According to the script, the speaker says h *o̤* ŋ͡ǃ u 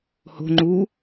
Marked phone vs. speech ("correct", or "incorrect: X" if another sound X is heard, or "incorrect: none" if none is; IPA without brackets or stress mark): correct